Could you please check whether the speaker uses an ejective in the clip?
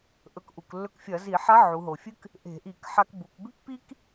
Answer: no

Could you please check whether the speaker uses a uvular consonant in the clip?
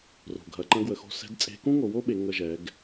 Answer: no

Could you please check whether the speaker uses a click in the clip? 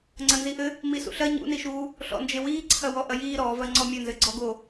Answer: yes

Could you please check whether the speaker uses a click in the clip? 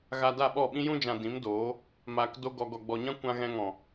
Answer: no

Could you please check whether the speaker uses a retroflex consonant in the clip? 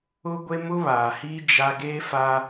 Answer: no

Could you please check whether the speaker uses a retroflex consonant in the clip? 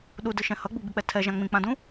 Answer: no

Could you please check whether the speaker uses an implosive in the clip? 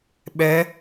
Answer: yes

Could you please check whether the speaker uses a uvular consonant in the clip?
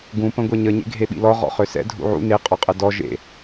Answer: yes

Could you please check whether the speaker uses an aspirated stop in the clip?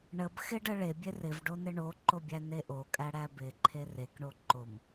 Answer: yes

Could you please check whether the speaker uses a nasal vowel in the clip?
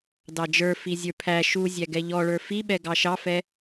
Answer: no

